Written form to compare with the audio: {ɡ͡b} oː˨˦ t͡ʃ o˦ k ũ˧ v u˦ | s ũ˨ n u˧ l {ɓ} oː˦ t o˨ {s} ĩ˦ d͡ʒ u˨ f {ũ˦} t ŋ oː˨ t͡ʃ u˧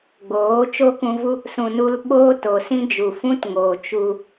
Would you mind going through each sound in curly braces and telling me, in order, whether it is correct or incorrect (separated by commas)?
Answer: correct, correct, correct, correct